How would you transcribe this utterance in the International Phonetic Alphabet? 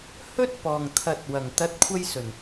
h ɵ˥ t̚ p ɔː˨˩ ŋ t̪ʰ ɐ˨ t̚ w ɐ˨˩ ŋ t̪ ɐ˨˥ t̚ kʷʰ ɐ˧ j s ɵ˨˩ n

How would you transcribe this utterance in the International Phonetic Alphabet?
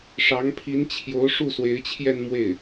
ʂ ɑ˧˥ ŋ pʰ i˧˥ n t͡ɕʰ j o˧˥ ʊ̯ ʂ u˥˩ s w e˧˥ ɪ̯ t͡ɕʰ j ɛ˥˧ n m w e˥˩ ɪ̯

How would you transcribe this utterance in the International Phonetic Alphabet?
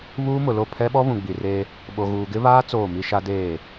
β uː˦ m ʊ˨ l o˦˨ pʰ ɛ˦ ɓ ɔ˦ β ũ˨ ɡ͡b i˨ r eː˦ | ɓ o˨ ɣ uː˨ ɡ ɪ˦ β aː˦ t͡s oː˦˨ m i˦ ʃ a˦ d eː˦˨

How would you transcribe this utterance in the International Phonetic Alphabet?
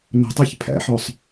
n o̤ tˤ ɔ ç pʰ æ̰ ħ ɔ sˤ

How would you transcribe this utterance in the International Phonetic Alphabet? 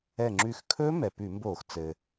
ɛ˧˩ ŋ͡ǁ ʉ˧˩ x kʰ ɵː˦˥ m ɛ˩ p ʉ˧˩˧ m b oː˧˩˧ x t͡s ɘː˩

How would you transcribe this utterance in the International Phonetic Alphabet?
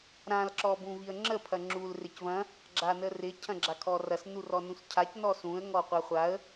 ɾ ã l ǁ ɔ b ũ v i ə̯ ŋ͡ǁ ə pʰ ɐ ŋ͡ǁ u l r ɪ c v ɐ̃ | ɡ͡ǁ a n ə r ɪ cʰ ɐ̃ ɡ͡ǁ a kʰ ɔ r ɐ s n u r ɔ n ũ s cʰ a c n ɔ s ũ ə̯ ŋ ɔ qʷ a χʷ a ə̯

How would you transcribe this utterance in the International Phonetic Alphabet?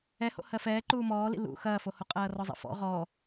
ɛ h o̰ h ɜ f ɛː ǃ uː m ɔː l ḭ l ṵ x ɐː f o h o qʼ ɐː r ɔ zˤ ḭ f ɔ̰ ʁ ɔ

